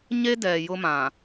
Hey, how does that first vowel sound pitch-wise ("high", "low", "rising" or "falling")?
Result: high